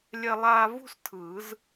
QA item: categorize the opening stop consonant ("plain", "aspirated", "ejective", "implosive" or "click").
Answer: aspirated